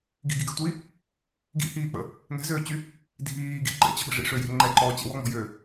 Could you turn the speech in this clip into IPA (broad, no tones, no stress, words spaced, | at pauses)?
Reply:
ɡi̤ɡiɡɛ̤tʷiː | ɡḭhiːk͡pə̰ | ŋɛ̤zøːt͡ɕy | dʱiːɡḭ ɡ͡ǃɛ̰t͡ɕə̤ɓə̤ ʐḭʂøjɛ̤ ŋ͡ǃɛǃɔːt͡ɕɛ̰ wɔŋ͡mɔ̤jøː